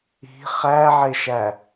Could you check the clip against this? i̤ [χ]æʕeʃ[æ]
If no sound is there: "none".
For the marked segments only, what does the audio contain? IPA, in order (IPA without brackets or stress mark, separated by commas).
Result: χ, æ